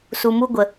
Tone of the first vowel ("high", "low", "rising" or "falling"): low